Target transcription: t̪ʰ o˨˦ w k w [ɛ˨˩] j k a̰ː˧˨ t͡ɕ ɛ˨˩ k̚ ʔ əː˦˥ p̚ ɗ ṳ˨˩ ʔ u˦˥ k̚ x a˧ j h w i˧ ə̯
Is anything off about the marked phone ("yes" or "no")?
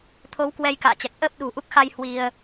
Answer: yes